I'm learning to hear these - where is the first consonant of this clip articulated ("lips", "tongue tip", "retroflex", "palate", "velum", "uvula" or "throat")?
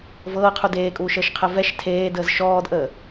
lips